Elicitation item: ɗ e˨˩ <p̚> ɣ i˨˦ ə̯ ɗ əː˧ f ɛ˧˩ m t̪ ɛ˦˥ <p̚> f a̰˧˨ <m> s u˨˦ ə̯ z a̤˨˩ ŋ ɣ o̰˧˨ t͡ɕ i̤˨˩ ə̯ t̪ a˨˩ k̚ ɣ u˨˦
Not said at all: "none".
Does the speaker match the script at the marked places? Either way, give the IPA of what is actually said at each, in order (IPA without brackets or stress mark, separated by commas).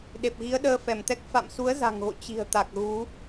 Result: p̚, k̚, m